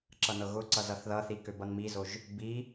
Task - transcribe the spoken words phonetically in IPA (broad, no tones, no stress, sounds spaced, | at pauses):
ǁ ʌ n ɤ ɣ ʊ ǀ ʌ z ʌ θ ð ʌ θ i k ø b ʌ n m i z o ʒ | b i